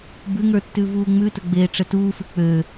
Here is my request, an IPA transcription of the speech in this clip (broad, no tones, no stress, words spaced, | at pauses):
bʉŋə˞tːʉ vuːŋ͡mʉtə ɡ͡beːʈ͡ʂətuːfʉ k͡pø